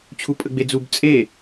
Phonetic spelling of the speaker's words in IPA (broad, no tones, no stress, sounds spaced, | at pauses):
t͡ɕʰ u pʼ ə ɡ͡b e d͡z u b t͡sʼ e